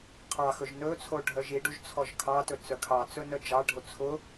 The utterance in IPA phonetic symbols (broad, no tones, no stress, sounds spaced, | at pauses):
qʰ ɑ x ɵ ʒ n ɵ t͡sʰ o ɖʱ œ ʒ i ɖ u ʒ t͡sʰ ɔ ʒ kʰ ɑ t ɵ t͡s œ kʰ ɑ t͡s ɵ n œ d͡ʒ ɑ ɖʱ o t͡sʰ ʊ